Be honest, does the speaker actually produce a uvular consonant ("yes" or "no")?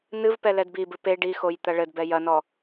no